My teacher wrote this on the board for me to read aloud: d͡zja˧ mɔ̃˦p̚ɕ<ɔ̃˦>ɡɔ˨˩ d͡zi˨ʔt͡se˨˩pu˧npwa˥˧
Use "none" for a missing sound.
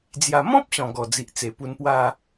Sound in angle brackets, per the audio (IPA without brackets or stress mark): ɔ̃˨˩